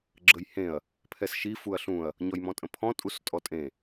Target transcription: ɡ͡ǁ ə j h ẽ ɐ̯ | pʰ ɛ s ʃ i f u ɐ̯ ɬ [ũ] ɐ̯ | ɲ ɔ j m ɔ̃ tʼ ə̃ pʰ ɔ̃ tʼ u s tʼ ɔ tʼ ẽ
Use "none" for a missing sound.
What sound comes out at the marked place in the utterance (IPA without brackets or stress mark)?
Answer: ũ